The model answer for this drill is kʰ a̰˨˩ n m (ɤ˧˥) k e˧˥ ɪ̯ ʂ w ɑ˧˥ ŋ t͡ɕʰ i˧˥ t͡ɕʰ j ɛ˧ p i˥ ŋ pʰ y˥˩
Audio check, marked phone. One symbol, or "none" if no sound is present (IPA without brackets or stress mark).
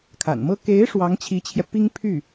ɤ˥